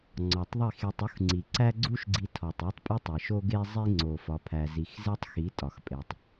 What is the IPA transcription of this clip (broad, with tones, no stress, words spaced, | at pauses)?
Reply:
ŋ͡ǀɒ˨tˤðˤi˦˨xe˧tˤ u˦xŋ͡ǀi˨ǀæ˦ ɡ͡ǀu˦ʃɡ͡ǀi˧tʰɒ˨tˤ e˦tˤpʼi˦ tˤe˨ ʃo˦ɡe˦zˤi˦ ŋ͡ǀo˨ fɒ˧pʰæ˧zi˧x ze˦tˤxi˨˦ tʼɒ˨xpʼe˨tˤ